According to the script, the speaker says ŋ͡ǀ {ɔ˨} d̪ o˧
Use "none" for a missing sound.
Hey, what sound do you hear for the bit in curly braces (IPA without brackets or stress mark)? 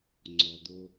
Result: ɔ˨